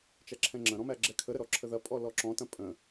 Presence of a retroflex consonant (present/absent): absent